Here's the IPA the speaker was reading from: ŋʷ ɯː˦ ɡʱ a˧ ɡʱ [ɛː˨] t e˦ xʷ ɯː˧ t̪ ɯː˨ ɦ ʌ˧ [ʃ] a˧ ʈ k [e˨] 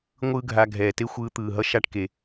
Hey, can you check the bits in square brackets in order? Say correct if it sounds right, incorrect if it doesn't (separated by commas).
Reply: correct, correct, correct